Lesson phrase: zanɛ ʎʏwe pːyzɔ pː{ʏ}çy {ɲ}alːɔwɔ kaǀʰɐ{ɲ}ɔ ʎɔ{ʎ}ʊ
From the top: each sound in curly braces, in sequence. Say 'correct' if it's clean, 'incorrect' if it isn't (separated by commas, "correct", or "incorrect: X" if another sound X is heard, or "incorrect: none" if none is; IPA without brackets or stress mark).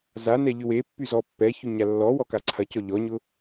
incorrect: ɛ, correct, incorrect: c, incorrect: ɲ